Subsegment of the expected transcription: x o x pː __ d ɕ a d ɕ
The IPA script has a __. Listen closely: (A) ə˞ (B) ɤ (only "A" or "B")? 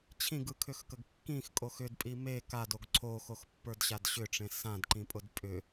A